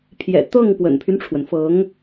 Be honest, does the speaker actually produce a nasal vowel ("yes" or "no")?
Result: no